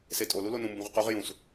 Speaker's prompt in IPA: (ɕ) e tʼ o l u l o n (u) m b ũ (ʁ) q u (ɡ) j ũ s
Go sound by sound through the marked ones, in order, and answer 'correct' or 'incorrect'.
incorrect: s, incorrect: ũ, correct, incorrect: ʁ

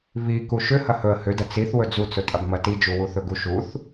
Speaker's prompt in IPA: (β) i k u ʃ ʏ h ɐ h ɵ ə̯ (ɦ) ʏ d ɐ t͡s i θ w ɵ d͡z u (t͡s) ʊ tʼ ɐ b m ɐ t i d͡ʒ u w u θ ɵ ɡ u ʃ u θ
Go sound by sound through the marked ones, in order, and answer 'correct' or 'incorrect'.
correct, incorrect: h, correct

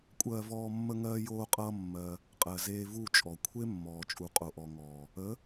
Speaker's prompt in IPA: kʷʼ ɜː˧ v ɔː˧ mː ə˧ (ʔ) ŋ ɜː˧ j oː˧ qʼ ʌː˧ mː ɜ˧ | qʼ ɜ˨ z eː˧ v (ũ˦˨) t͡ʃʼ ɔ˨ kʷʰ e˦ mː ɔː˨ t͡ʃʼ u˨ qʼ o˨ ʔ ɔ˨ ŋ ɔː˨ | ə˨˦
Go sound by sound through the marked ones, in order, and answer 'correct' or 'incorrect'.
incorrect: none, incorrect: u˦˨

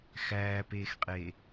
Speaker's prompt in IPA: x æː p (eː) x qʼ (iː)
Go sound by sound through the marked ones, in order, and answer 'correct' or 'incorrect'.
correct, incorrect: eː

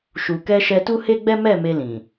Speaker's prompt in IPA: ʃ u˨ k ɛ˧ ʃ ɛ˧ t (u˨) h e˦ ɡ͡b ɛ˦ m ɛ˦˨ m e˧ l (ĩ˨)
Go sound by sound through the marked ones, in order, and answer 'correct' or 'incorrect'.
incorrect: u˦, correct

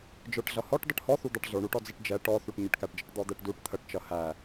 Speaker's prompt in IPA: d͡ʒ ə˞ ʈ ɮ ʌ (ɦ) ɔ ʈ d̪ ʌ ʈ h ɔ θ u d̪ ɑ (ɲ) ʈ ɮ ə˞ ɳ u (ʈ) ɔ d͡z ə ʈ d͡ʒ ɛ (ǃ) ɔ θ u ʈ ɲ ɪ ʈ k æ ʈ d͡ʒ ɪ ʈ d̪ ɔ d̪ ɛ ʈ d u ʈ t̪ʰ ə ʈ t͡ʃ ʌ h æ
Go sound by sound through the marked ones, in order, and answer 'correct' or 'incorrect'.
incorrect: h, incorrect: none, correct, incorrect: ʈ

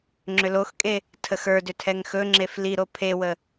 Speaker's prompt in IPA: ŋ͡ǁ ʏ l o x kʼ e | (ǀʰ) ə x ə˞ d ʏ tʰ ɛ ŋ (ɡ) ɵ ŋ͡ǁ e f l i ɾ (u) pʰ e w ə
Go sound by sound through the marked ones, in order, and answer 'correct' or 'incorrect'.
incorrect: tʰ, incorrect: x, incorrect: o

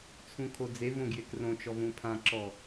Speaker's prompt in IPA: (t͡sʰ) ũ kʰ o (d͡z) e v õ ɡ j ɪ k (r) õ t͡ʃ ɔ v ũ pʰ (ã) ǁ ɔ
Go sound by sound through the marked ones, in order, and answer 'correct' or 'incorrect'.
correct, correct, correct, correct

